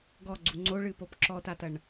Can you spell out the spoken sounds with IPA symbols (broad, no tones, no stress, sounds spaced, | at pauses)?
ɡ ɔ ɡ͡ǀ u ŋ͡ǀ o ɭ ɨ p o p ǁ ɔ t a t ɐ ɳ